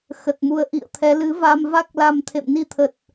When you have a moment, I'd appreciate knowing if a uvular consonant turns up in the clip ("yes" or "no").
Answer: no